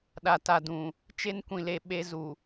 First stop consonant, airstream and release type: implosive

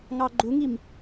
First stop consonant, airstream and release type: click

